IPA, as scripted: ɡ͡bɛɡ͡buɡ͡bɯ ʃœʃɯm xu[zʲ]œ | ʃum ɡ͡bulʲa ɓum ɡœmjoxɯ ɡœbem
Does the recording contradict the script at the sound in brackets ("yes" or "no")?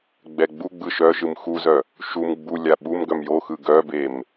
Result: yes